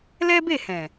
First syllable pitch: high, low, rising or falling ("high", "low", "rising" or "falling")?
high